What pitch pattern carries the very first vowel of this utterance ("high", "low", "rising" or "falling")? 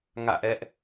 falling